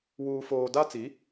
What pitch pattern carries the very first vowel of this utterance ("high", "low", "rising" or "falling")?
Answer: high